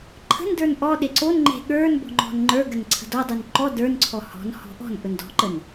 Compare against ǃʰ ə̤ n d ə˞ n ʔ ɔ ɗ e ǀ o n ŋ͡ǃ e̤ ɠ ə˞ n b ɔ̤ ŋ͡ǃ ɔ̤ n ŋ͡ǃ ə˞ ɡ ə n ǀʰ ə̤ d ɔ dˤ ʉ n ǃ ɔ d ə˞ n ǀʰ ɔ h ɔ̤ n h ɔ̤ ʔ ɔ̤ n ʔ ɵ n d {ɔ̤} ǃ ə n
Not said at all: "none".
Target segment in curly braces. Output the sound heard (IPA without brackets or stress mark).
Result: ɔ̤